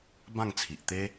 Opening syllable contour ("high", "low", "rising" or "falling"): falling